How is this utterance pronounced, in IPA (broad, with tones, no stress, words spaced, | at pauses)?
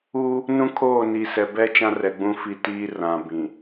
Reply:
uː˦ | nũ˦kʰoː˦˨ ni˨sɛ˨bɛ˦ t͡ʃã˦rɛ˨ɡ͡bũ˦fi˦˨ tiː˦rã˨ bĩ˨